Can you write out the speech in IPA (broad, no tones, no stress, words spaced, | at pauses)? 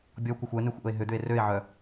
bʲɔkʷɐxʷ ɛnøxʷ ʔəe̯ɦʏd̪ʏe̯ røe̯ʕœ